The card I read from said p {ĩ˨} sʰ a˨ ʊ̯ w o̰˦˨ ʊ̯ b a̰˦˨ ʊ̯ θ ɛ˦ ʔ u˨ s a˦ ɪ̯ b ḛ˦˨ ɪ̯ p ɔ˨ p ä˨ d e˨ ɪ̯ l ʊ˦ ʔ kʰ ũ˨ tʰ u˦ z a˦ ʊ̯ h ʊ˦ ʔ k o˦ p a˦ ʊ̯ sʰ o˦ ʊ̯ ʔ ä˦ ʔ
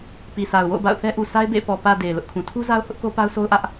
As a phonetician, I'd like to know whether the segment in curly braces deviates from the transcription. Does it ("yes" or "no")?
yes